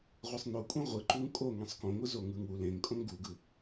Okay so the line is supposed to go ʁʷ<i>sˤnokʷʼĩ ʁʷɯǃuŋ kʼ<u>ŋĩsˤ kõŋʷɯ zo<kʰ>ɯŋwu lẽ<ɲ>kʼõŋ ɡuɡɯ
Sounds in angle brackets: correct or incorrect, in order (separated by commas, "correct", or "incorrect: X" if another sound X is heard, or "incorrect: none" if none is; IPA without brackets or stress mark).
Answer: incorrect: e, incorrect: o, incorrect: ŋ, incorrect: ŋ